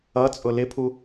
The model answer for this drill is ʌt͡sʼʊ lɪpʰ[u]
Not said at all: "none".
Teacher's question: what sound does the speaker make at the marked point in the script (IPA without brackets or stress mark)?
u